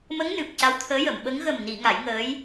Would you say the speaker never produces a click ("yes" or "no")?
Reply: yes